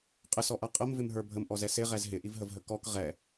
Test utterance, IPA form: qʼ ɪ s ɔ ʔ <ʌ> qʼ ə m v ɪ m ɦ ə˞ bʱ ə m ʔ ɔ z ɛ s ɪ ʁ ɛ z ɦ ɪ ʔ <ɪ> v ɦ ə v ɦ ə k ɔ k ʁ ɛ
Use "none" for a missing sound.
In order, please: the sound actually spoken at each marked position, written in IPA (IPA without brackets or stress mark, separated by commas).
ʌ, i